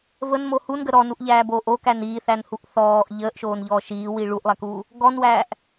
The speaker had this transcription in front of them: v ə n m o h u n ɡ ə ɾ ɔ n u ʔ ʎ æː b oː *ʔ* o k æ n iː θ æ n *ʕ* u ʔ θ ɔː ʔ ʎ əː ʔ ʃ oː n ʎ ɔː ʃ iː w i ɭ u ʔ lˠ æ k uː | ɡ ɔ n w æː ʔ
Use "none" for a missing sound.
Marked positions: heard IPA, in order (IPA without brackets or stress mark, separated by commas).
ʔ, h